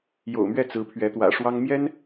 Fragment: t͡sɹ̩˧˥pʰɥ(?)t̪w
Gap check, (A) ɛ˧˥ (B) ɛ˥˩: A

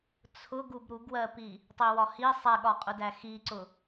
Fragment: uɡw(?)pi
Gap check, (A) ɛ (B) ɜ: B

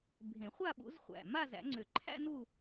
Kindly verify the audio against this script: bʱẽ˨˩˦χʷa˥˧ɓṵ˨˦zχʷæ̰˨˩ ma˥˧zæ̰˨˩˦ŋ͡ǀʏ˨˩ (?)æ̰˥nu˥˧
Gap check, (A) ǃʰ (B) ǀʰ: A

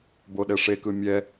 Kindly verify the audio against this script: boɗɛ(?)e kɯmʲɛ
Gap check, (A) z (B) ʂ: B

